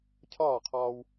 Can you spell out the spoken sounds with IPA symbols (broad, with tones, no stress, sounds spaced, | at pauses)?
cʰ ɒː˦˨ qʰ ɒː˧ w